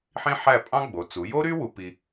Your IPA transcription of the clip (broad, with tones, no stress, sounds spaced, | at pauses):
ħ ĩ˥ ħ æ˥˧ pʼ ɑ̃˥ ɡ͡b o˩˧ t͡s u˩˧ j o˥ ɾ y˥ w u˧ p i˧